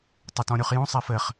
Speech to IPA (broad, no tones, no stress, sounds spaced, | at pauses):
tˤ ɘ t ɔ̃ ɾʲ u χ j ũ sˤ e f ɘ χ